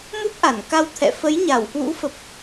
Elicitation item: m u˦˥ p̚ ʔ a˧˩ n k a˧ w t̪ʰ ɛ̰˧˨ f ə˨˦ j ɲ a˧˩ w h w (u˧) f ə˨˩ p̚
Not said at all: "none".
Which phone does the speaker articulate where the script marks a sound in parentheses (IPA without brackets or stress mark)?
ṵ˧˥